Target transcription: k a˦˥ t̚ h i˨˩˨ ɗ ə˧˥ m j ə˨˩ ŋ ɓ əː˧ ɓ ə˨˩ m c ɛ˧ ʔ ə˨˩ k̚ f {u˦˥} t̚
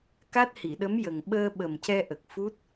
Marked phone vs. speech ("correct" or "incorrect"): correct